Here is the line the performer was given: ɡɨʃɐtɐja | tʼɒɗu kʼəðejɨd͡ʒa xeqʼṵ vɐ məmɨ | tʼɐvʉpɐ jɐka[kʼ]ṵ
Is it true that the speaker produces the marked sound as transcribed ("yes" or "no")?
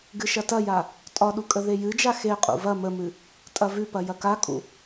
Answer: yes